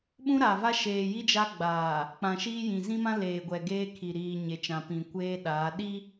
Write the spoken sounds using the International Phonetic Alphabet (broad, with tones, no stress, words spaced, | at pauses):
ɓũ˦ɾa˨va˦ ʃeː˨ji˦ d͡ʒa˦ɡ͡baː˨ | k͡pã˨ʃiː˦jĩ˨ zĩ˦mã˦ leː˨ɡʷɛ˨ ɡeː˦kʰi˨ ɾiː˨ ɲe˨t͡ʃã˨ pĩ˨kʷeː˦ɗaː˨˦ ɗi˦